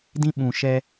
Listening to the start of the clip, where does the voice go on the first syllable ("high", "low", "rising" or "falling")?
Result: high